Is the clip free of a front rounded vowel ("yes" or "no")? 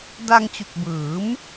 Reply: yes